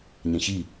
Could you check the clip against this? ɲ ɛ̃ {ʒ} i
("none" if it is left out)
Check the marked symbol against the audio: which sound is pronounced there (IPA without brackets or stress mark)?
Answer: ç